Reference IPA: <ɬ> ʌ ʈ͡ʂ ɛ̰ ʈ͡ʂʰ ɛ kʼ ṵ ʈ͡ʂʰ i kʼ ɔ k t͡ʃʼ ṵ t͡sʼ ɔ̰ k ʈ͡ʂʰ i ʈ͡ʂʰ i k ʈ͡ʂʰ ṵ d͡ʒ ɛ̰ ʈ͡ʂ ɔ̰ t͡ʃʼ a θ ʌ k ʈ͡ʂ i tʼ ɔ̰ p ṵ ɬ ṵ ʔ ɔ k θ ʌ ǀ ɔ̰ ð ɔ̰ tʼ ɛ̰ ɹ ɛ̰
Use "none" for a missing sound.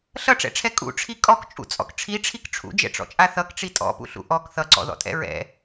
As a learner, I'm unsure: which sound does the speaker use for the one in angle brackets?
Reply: ɬ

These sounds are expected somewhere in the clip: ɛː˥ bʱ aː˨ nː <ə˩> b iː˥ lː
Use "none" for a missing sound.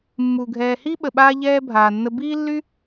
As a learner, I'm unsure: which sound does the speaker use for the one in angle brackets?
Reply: ə˦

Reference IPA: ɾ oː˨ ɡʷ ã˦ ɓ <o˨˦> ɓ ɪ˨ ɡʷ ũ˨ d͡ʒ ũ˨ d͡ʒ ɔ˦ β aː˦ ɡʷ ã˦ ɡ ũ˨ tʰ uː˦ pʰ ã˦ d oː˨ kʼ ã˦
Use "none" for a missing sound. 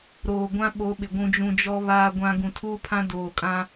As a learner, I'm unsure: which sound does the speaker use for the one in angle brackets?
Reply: o˨˦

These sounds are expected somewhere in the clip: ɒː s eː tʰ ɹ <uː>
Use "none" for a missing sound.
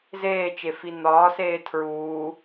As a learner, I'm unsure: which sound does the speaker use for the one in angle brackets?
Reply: uː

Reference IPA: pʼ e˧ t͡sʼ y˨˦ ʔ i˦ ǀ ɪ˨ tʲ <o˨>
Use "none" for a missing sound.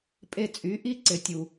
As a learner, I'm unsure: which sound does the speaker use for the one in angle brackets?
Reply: u˨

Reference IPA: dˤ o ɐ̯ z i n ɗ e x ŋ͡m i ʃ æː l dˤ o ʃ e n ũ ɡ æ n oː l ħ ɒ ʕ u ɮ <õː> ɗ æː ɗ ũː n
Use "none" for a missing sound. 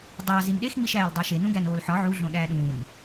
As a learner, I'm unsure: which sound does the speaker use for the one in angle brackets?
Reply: õ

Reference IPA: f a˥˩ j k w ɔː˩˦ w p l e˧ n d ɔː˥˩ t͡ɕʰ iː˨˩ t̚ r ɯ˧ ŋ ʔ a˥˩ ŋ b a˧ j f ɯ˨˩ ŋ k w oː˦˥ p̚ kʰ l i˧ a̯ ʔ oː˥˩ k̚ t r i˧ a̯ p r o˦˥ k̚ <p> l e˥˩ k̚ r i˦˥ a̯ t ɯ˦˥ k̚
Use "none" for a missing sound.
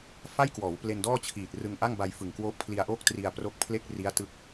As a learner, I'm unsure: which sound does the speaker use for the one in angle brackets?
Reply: pʰ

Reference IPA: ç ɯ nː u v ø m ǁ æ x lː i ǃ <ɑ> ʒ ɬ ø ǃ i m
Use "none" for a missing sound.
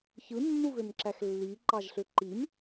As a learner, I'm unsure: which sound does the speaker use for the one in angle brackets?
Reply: ɑ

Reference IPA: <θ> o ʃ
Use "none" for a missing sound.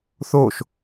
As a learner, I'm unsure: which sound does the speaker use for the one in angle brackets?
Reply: θ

